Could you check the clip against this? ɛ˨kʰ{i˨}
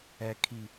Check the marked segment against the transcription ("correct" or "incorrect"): correct